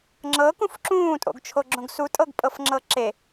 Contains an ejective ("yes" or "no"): yes